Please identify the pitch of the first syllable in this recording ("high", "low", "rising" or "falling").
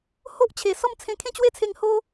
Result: high